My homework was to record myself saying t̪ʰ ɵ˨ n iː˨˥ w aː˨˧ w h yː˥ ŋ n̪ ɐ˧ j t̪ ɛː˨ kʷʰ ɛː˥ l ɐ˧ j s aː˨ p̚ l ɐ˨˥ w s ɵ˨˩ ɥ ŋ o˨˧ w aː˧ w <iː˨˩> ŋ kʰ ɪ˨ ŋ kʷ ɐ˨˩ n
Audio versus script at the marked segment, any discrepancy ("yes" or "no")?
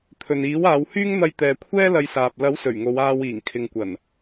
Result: no